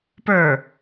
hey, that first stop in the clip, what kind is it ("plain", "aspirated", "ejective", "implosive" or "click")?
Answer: plain